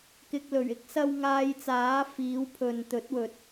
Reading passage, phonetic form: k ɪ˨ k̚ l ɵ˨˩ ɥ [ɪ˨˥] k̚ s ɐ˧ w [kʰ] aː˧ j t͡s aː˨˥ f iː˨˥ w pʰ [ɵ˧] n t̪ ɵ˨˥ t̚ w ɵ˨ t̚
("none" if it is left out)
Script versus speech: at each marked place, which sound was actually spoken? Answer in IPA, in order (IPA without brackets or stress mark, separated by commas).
ɪ˥, ŋ, ɵ˨